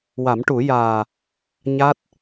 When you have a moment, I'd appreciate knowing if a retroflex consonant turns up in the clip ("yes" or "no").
yes